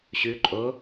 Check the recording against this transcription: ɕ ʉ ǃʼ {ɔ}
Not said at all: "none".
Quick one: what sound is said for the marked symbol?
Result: o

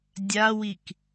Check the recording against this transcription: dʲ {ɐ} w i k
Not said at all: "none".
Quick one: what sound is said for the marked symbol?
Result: a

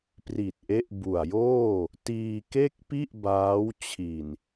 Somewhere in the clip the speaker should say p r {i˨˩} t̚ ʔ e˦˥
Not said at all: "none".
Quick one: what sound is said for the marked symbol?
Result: i˨˩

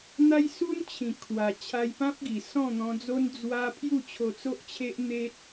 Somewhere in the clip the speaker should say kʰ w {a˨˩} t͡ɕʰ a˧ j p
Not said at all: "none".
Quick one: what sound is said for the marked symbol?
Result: a˨˩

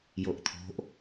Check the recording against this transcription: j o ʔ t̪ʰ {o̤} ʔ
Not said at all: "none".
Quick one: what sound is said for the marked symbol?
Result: o̤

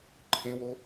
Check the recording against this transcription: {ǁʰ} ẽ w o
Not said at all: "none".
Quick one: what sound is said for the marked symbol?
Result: ǃʰ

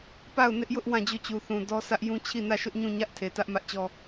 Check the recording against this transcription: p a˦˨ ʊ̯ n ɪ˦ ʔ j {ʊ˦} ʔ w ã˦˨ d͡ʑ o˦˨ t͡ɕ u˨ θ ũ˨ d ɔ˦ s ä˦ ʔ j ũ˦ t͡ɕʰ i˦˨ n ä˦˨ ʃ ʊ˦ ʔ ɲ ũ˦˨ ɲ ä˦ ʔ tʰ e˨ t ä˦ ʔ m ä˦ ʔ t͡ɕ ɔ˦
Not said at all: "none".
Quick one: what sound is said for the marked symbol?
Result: ʊ˦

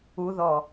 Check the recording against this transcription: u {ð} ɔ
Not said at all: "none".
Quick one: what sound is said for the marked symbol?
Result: ð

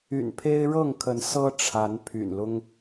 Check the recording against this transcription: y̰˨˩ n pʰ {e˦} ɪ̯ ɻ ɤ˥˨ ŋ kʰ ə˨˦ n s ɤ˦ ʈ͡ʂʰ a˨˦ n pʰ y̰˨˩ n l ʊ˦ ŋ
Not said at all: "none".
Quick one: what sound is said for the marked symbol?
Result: e˦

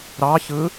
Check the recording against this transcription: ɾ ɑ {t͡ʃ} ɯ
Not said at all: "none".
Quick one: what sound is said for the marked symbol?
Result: ç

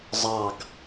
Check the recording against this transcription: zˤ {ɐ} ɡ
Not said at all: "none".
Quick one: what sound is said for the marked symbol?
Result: ɑ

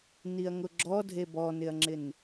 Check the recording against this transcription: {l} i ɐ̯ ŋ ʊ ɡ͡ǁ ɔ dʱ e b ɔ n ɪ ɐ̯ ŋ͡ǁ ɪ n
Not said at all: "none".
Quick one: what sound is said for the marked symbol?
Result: n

